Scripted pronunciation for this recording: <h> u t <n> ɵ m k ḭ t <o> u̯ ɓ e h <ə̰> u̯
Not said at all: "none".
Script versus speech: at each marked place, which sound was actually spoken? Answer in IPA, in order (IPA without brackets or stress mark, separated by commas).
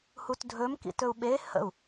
h, dʱ, ɵ, ə̰